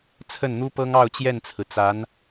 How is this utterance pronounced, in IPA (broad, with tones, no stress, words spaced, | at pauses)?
t͡sʰə˥˩nn̪u˥pɤ˥ŋɑ˥˧ʊ̯ t͡ɕjɛ˥˩nt͡sʰɹ̩˩t͡sa˧˥n